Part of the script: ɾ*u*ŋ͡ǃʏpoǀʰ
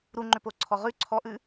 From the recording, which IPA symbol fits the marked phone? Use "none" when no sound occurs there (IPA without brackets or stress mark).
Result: u